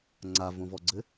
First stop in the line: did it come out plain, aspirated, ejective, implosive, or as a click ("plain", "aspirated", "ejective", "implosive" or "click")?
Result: click